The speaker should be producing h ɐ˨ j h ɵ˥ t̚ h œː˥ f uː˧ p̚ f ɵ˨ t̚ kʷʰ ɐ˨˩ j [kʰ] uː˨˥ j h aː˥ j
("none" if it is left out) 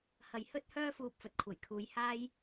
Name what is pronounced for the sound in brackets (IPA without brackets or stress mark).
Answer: kʰ